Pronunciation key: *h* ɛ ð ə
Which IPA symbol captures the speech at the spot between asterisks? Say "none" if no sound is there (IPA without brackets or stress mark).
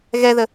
ɣ